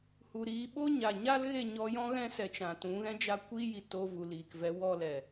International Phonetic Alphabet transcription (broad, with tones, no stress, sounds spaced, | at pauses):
h u˨ ɾ iː˧ ɓ o˦ ɲ a˨ ɲ a˦ l ɣ e˦˨ ɲ ɔ˧ j ɔ̃˦ ɣ ɛ̃˦ s ɛ˧ t͡ʃ ã˨ t ũ˨˦ ɣ ɛ̃˦ d͡ʒ a˦ kʷ iː˦ j i˧ t oː˧ v u˨ l iː˨ k v ɛ˨˦ w ɔ˧ l ɛ˨